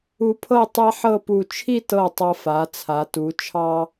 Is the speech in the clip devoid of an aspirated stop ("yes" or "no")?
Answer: no